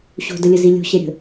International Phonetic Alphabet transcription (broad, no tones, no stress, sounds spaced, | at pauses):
ɕ o̤ d ə lʲ ə z i lʲ o̤ ɕ ɛ ɾʲ ə̤